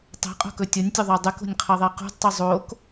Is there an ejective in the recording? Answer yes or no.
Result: yes